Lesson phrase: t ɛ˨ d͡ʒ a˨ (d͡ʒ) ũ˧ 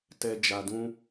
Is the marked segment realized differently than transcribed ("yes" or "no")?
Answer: yes